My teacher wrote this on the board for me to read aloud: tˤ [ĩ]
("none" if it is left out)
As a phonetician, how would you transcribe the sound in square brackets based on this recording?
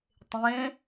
ẽ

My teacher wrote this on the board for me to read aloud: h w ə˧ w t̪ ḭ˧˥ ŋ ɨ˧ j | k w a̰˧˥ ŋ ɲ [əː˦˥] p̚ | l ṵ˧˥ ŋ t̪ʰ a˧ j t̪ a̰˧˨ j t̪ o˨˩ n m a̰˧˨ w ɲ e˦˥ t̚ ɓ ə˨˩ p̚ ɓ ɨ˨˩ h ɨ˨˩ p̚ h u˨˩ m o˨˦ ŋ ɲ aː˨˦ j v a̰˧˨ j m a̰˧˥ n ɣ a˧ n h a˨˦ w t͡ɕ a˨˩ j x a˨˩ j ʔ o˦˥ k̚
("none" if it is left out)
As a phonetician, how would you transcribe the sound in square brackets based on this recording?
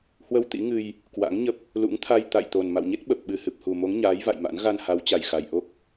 ə˦˥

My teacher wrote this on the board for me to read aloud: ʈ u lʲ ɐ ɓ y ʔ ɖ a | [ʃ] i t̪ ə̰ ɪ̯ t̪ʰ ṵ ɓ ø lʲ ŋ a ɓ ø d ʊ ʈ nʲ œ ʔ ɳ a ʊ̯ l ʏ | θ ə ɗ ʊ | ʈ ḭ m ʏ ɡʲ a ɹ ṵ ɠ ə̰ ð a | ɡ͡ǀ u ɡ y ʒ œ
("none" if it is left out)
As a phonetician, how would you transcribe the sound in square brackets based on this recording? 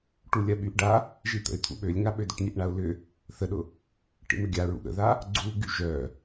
ʒ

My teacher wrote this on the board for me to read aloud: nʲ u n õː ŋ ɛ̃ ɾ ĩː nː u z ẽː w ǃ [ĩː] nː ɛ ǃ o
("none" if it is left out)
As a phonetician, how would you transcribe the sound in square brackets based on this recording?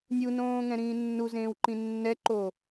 ĩ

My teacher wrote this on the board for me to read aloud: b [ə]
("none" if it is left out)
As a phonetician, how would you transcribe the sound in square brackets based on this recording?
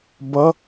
ʌ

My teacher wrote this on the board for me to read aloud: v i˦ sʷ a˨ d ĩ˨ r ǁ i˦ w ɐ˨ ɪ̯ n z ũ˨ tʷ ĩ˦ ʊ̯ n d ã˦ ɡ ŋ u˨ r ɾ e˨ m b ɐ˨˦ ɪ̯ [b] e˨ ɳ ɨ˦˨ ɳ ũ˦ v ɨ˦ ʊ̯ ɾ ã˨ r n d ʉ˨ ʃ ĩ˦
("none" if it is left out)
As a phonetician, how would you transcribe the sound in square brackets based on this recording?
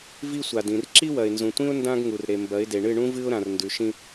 d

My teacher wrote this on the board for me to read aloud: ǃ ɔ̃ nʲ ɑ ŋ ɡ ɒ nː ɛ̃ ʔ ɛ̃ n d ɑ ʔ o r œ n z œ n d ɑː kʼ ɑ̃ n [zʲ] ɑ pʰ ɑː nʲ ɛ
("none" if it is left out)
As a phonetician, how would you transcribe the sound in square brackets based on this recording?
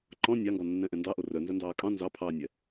z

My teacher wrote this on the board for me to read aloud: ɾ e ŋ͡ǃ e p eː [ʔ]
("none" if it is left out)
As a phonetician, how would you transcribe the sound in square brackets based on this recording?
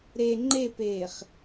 χ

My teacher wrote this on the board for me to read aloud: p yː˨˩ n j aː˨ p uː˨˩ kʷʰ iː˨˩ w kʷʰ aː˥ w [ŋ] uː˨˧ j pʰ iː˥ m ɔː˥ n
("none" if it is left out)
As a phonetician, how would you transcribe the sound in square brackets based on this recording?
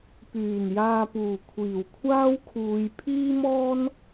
kʰ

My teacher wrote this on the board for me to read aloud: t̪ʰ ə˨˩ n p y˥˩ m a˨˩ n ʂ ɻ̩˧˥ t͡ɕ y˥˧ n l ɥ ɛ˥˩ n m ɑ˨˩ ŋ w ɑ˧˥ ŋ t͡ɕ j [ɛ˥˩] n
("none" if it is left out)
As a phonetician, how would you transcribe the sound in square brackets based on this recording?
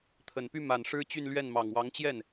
ɛ˥˩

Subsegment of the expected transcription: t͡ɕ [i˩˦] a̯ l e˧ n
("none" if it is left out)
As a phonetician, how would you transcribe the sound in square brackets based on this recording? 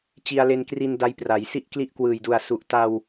i˧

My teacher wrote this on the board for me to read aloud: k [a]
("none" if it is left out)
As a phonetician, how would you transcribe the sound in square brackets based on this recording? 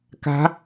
a̤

